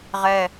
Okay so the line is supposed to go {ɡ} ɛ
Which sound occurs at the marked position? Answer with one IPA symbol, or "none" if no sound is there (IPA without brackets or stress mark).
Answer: ʁ